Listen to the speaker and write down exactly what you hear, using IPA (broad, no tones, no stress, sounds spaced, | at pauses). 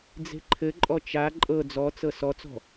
d͡z e̤ ǃʰ ɘ ǃʼ ɔ t͡ʃ a ǃʼ ɤ d͡z ɔ t͡s ɤ s ɔ t͡s ɔ̤